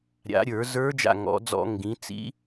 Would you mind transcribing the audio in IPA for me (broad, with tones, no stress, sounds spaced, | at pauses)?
ɾʲ a̰˩˧ ɾʲ ə˞˧˩˧ z ə˞˧˥ d͡ʒ a̰˧˩ ŋ ɔ̰˩˧ d͡z ɔ̰˧˩˧ ŋ ɡ ĩ˩˧ t͡s ḭ˧˥